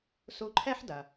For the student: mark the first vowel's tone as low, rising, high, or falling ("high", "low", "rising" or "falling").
rising